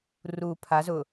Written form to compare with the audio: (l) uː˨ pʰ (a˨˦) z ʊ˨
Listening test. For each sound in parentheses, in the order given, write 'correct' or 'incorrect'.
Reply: incorrect: r, correct

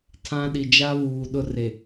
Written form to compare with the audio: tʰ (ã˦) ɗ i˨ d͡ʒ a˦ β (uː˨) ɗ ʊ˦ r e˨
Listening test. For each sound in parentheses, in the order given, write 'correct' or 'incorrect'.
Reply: correct, correct

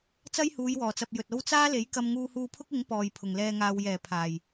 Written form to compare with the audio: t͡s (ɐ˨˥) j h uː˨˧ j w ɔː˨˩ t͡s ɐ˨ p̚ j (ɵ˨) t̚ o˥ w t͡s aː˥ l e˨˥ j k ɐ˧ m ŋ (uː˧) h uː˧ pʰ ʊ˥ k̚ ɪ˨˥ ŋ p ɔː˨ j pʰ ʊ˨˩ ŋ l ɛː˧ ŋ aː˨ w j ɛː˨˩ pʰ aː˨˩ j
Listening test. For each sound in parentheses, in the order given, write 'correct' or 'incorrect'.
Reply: incorrect: ɐ˥, correct, correct

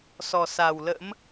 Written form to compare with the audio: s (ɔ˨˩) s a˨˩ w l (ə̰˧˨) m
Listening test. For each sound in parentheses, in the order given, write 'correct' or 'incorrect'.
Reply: correct, incorrect: ə̰˧˥

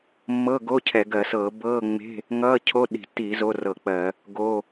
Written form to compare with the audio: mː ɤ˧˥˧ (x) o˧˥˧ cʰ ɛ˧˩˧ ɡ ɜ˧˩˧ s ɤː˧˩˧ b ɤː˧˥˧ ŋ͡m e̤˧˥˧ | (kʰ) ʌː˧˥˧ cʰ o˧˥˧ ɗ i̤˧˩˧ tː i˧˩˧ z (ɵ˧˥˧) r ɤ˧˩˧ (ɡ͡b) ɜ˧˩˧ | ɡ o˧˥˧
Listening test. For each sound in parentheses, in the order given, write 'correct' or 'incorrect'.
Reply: incorrect: ɡ, incorrect: ŋ, incorrect: o˧˥˧, incorrect: k͡p

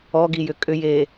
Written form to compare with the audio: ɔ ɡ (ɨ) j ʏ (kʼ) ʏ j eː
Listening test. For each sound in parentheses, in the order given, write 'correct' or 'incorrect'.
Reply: incorrect: i, correct

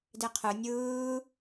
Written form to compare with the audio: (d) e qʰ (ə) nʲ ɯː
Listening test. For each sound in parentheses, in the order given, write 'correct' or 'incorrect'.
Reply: correct, incorrect: ɯ

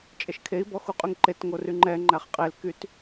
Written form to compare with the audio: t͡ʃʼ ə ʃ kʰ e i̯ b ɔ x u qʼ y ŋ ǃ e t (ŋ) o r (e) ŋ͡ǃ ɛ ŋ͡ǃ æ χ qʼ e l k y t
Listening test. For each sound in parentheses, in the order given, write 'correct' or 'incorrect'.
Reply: correct, incorrect: y

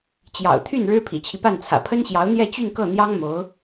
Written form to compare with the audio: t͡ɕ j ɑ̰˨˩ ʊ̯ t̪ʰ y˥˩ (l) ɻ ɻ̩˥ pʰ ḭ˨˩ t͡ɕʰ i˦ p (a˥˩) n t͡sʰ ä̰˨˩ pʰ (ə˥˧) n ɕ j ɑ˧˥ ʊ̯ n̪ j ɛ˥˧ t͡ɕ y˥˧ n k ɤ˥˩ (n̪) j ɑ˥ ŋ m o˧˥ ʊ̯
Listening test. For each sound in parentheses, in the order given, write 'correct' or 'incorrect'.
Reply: incorrect: n, correct, incorrect: ə˥, correct

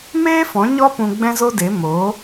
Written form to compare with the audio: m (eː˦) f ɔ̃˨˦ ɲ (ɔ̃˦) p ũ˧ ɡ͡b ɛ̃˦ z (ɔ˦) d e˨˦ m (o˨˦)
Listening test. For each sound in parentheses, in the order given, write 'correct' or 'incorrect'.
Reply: correct, incorrect: ɔ˦, incorrect: o˦, correct

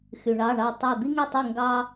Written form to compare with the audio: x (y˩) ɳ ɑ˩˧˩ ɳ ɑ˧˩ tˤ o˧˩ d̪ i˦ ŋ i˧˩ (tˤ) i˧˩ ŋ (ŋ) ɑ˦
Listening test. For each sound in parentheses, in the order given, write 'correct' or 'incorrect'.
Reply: correct, correct, incorrect: ɡ

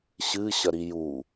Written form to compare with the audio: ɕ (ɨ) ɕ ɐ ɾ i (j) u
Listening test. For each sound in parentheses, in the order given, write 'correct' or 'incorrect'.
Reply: correct, correct

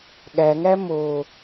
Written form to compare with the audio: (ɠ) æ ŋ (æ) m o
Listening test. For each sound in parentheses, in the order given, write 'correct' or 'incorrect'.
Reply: correct, correct

